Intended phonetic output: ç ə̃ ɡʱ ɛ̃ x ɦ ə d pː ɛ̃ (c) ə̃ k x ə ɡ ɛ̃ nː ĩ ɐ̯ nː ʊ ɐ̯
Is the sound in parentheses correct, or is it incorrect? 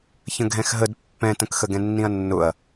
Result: incorrect